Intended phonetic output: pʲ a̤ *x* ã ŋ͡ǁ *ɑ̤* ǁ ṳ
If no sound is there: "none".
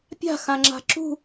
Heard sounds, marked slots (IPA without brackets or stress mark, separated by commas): x, a̤